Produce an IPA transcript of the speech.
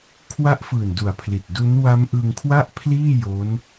kʰwa˦˥ʔfɯː˨˩n du˨˩a̯pʰli˨˩t̚ du˦˥n wa˦˥mʔɯ˧ŋkʰwa˥˩ʔpʰliː˥˩ jo˦˥n

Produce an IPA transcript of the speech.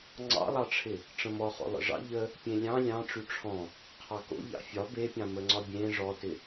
ŋ͡ǀɑ̰lˠɑʈ͡ʂʰɪ | ʈ͡ʂə̃mɔχo̰ lˠə̰ʐɑ̰ ʎə | pʲẽlʲɑ̃ lʲɑ̃ ʈ͡ʂyʈ͡ʂʰɔ̃ | qʰɑko̰ ʎɑ̰fʲɒ bepʲɑ̃ məŋ͡ǀɒbʲẽ ʐɔtɪ

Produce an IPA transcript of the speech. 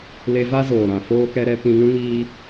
le˧va˦zoː˨ ɾã˨ foː˧kɛ˧ɾɛ˧ pĩ˧ŋũ˦ ŋiː˦

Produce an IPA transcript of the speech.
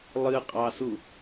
lˠɨqʼɑsu

